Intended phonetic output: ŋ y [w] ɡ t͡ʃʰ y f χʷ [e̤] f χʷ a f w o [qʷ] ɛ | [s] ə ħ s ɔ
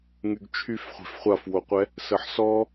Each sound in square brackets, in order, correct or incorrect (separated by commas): incorrect, correct, correct, correct